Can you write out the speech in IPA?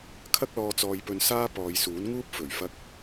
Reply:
kʰ ɐ˥ k̚ l ɔː˧ t͡s ɔː˧ j p ɵ˧ n s aː˥ p ɔː˨˧ j s uː˨˥ n ŋ uː˥ p̚ f ɵ˨˩ ɥ f ɐ˧ k̚

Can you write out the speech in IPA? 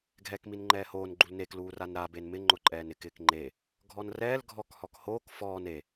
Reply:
ɡʱ ɛː k m i n ŋ͡ǃ ɛː h oː n ɡ͡ǃ u l n e k l uː r a n ɾ a b e n m ɪ ŋ͡ǃ ʊ ǃʼ ɛː n ɪ k ɪː k ŋ͡ǃ e | ɡʱ ɔ n r ɛː l ɡʱ ɔ k h ɔ k h oː k f ɔː n e

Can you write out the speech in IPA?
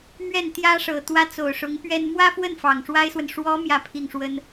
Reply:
m ɥ ɛ˥˩ n t̪ j ä˥ ʂ ɤ˨˩ t̪ w ä˥ t͡s o˨˩ ʊ̯ ʂ ʊ˧˥ ŋ p ɥ ɛ˥ n m w ä˥ f w ə˥˩ n f ɑ˨˩ ŋ ʂ w a˥ ɪ̯ s w ə˨ n ʂ w ɔ˧˥ m j ä˥˧ pʰ i˥˩ ŋ ʂ w ə˥ n

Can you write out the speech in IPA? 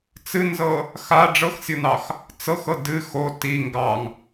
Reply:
t͡s ɨ n z ɤ | x a ɖ͡ʐ ɤ x sʲ ɤ n ɑ x | t͡s ɤ x ɤ d ɨ x o t i ŋ ɡ ɑ ŋ

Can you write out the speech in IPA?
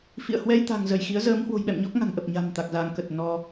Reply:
f ḭ˧˨ ə̯ h w ɛ˧ j t̪ a̤˨˩ ŋ z ə˧˩ j x i˨˦ ə̯ z əː˨˦ m h w o̤˨˩ j ɓ ɛ̰˧˨ m ɲ ɔ˦˥ k̚ ŋ a̤˨˩ ŋ ʔ ə˨˩ p̚ ɲ a̤˨˩ m t̪ a˨˩ k̚ z aː˨˦ ŋ k ə˨˩ t̚ n ɔ˧

